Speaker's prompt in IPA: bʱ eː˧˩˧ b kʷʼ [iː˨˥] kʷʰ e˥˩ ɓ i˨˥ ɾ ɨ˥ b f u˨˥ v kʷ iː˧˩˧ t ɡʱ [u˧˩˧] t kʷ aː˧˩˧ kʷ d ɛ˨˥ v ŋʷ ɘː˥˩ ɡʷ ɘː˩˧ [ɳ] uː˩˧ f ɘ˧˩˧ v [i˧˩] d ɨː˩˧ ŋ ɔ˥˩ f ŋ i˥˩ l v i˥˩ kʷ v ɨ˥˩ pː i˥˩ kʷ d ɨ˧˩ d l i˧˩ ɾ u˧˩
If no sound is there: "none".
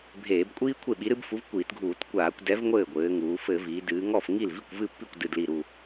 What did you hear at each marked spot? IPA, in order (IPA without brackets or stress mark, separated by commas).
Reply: iː˥, uː˧˩˧, ŋ, i˩˧